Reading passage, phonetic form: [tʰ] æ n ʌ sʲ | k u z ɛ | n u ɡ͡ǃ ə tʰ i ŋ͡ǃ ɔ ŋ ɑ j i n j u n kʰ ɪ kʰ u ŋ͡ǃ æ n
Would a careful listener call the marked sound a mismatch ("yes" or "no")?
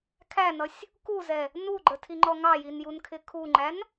yes